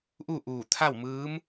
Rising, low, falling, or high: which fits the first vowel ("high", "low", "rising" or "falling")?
falling